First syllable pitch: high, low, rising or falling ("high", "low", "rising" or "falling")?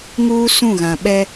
high